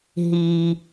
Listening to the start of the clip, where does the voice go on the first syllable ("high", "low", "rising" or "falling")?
low